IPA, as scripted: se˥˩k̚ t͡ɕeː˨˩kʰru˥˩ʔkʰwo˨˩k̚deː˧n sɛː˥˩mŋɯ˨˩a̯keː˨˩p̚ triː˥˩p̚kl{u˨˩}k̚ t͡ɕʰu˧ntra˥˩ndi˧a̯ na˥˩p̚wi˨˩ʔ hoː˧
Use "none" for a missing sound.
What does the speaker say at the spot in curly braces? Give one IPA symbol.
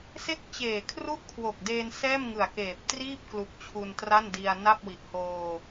u˨˩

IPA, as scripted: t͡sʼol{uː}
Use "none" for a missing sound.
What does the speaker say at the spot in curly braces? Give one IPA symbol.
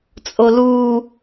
uː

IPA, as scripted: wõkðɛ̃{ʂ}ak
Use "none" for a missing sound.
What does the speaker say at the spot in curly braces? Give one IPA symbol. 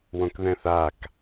θ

